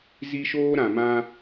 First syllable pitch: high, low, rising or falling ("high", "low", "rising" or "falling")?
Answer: high